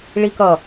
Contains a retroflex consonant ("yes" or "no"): yes